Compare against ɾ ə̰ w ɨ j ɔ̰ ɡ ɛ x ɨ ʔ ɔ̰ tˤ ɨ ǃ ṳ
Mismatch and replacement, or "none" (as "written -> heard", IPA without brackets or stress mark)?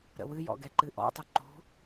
x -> ǃ